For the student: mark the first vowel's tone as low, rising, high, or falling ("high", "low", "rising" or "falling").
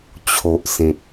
low